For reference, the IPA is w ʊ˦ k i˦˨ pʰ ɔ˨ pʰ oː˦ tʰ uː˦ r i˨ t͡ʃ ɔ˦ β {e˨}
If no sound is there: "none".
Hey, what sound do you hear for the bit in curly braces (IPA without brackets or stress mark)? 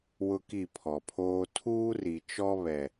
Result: ɛ˨